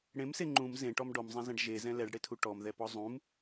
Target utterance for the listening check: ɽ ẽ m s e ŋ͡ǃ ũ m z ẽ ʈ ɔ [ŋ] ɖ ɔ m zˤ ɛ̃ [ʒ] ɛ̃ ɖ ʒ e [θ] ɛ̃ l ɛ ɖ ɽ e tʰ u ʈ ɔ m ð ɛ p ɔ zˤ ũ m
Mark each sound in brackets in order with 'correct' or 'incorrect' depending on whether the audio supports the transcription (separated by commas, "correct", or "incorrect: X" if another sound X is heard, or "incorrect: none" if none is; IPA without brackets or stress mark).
incorrect: m, incorrect: z, incorrect: z